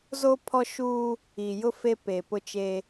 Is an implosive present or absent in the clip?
absent